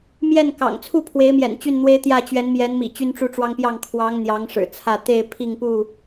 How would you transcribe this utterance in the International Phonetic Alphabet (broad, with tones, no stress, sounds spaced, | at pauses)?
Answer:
m j ɛ˥˨ n k ɑ̰˨˩ ŋ t͡sʰ u˥˨ pʰ w e˨˦ ɪ̯ m j ɛ̰˨˩ n t͡ɕ y˥˨ n n̪ w e˦ ɪ̯ t̪ j ä˥˨ t͡ɕ ɥ ɛ˨˦ n m j ɛ˨˦ n m ḭ˨˩ t͡ɕ y˦ n ʈ͡ʂ u˦ ʈ͡ʂ w ɑ˦ ŋ p j ɑ˥˨ ŋ kʰ w ɑ˨˦ ŋ n̪ j ɑ˨˦ ŋ ʂ ɻ̩˨˩ t͡sʰ ä˥˨ t̪ e˥˨ ɪ̯ pʰ i˥˨ ŋ p u˥˨